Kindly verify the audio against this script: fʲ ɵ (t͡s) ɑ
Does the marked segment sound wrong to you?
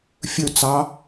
no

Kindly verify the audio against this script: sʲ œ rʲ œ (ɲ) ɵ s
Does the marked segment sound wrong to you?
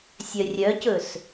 yes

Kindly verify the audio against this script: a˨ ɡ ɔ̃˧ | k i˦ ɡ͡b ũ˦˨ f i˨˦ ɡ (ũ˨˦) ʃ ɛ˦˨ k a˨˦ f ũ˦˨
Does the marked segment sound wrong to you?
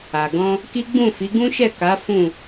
yes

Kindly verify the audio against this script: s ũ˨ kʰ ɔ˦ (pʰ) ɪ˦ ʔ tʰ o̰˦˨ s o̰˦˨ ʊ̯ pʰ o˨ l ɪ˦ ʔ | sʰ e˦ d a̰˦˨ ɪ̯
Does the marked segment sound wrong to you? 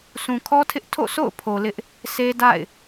yes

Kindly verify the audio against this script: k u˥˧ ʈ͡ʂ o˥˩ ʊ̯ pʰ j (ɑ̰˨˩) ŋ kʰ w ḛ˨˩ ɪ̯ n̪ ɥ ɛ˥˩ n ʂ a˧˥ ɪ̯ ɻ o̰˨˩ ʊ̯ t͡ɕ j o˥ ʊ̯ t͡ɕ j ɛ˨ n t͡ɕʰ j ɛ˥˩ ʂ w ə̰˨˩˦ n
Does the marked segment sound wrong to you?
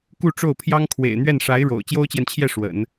yes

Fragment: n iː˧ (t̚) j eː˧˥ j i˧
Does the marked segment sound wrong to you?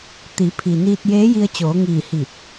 no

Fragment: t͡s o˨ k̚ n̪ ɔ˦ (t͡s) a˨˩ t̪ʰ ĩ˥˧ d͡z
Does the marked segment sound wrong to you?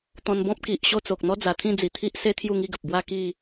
yes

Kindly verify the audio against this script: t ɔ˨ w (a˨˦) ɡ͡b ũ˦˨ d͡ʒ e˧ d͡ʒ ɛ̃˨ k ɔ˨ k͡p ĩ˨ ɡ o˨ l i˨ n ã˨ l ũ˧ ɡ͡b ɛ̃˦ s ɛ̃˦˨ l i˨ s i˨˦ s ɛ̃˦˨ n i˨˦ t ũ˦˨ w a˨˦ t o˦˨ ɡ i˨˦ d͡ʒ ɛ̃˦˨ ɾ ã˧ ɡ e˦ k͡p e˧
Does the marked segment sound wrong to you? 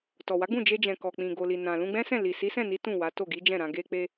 no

